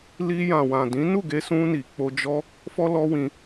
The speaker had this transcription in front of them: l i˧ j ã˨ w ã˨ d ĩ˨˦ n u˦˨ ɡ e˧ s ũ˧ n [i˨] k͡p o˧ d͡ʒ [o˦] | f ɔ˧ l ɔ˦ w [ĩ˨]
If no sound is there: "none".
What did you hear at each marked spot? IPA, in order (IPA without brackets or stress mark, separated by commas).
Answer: i˨, ɔ˦, ĩ˧